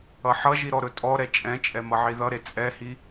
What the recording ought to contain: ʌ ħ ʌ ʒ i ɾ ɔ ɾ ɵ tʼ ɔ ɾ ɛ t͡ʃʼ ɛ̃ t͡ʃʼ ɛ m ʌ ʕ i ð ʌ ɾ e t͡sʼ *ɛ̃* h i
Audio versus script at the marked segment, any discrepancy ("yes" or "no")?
yes